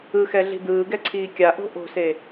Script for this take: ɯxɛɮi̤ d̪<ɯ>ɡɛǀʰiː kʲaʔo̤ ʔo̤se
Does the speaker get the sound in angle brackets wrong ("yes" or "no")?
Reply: yes